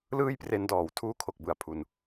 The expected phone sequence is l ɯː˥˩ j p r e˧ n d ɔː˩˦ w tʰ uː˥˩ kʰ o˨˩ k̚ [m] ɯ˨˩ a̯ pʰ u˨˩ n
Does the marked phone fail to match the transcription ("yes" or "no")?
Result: yes